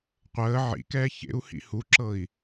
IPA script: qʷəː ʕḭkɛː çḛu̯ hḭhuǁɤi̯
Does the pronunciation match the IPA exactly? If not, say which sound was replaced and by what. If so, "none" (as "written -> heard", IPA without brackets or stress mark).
none